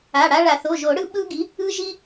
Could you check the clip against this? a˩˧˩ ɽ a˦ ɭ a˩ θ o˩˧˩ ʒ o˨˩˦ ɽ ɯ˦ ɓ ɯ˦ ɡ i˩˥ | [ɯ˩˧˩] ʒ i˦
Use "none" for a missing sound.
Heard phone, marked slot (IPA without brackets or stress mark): ɯ˦